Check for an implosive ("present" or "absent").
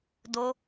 absent